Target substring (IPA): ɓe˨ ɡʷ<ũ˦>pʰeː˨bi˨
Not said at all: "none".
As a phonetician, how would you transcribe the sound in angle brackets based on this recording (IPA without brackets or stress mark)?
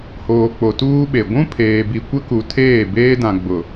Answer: ũ˦